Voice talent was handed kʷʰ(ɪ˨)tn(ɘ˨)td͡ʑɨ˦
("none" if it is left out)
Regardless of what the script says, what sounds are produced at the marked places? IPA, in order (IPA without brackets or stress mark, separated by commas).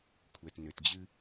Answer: ɛ˨, ɘ˨